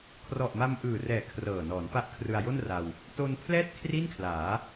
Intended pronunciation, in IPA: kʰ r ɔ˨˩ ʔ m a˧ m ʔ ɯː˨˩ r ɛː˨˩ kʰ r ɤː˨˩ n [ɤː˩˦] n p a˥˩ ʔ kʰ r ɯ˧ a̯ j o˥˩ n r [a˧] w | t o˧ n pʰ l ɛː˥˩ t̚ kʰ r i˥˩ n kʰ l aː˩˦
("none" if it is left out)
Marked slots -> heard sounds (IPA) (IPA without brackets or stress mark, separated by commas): ɔː˩˦, a˧